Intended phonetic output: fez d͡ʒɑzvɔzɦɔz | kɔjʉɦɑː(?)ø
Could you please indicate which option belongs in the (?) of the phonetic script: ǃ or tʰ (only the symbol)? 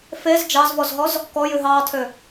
tʰ